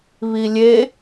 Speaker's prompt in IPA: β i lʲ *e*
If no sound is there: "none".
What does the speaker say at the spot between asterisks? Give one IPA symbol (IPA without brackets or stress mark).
e